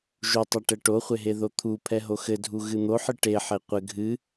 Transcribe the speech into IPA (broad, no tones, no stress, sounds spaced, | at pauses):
ʒ u tˤ ɛ ʈ ɛ ʈ o χʷ e ɦ e ð o t̪ʰ u pʰ ɛ ɦ o x ɘ dʱ u ɣ ɨ n̪ o ħ ɨ ʈ e ħ e qʷ ɘ ɡʱ ɨ